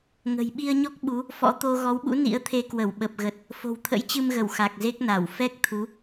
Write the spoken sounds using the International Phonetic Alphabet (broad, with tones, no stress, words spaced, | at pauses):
ŋə̤˨˩jɓi˧ə̯ɲɔ˦˥k̚ɓu˨˦ | fɔ̰˧˥t̪o˧ ɣɔ˨˦wɓṵ˧˥ nḭ˧˥ə̯t̪ʰe˧ kwə˧˩wɓə˨˩p̚ɣə˨˩t̚ | fo̤˨˩wt̪ʰə̰˧˥jt͡ɕɨ˧mɣə˧˩w xa˨˩k̚ze˦˥k̚na˧˩w fɛ˦˥k̚t̪ʰu˨˦